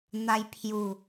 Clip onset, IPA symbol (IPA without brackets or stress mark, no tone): n̪